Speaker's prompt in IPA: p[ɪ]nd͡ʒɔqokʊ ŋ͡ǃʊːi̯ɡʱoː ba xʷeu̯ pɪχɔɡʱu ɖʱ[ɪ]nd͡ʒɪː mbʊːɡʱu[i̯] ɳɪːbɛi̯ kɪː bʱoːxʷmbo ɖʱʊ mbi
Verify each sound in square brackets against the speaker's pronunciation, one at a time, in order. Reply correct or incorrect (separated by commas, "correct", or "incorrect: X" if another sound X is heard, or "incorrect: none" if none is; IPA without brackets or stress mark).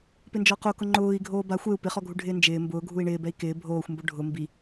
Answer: correct, incorrect: ɪː, correct